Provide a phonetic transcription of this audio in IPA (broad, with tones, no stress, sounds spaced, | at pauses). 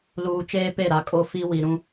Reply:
l uː˨ t͡ʃ eː˦ p e˦˨ ɾ a˨ kʼ o˦ f i˦ w i˨ ɾ ũ˦